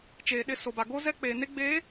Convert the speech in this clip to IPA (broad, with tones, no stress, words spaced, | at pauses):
t͡ʃeː˨ɗɪ˦˨ so˨ba˨ ɡo˦zɛ˦ k͡peː˨ne˦ ɡ͡beː˨˦